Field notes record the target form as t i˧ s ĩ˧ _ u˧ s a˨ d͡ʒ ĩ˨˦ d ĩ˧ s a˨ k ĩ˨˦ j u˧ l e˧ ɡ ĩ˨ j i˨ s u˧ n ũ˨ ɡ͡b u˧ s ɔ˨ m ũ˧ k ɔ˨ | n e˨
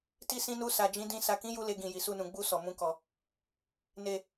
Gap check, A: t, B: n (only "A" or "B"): B